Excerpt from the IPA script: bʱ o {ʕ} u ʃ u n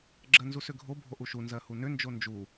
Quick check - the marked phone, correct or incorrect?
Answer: incorrect